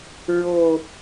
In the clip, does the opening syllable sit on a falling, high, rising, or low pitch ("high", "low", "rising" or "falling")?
low